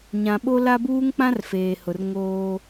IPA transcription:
ɲ ã˨ ɓ o˦ l a˦ b uː˦ ŋ k͡p ã˦ r f eː˨ h ʊ˨ r ŋ oː˦

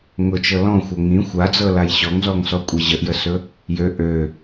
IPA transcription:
ŋ ʊ t͡ʃ ɤ l ɔ̃ xʷ ɤ ŋ ĩ xʷ a d͡z ɤ l a j ɕ ɔ ŋ z ɔ ŋ s ɔ kʷʼ i ʑ ə ʔ j ə s ɵ | j ø ʔ ø

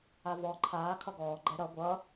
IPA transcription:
a v ɔ ǃʰ aː kʰ ʌ ɡ ɔː ɡ͡ǃ ɛ ɾ ʌ ɡʷ ʌ

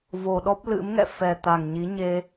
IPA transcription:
v o˨˩ ɗ ɔ˦˥ p̚ l ɨ̰˧˥ m ŋ ɛ̰˧˨ f ɛ˨˩ t̪ a˨˩ ŋ ɲ i˨˦ ɲ e˧

